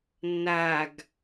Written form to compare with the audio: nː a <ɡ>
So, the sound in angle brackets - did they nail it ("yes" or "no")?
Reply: yes